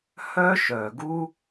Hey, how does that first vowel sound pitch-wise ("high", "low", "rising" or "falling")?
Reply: high